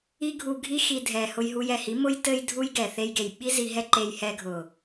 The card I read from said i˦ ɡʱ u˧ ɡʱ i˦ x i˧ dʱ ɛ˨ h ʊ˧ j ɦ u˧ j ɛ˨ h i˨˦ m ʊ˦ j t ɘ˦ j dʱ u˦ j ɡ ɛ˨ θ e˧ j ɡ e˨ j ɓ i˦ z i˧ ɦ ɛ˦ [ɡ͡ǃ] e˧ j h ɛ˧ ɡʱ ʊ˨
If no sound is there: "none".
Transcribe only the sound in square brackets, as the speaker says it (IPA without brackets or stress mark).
ǃ